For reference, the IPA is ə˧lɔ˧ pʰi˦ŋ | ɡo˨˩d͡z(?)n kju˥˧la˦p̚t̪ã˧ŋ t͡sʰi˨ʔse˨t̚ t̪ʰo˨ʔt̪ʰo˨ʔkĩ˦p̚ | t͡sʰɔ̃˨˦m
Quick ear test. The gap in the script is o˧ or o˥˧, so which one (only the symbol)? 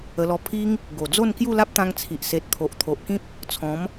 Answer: o˥˧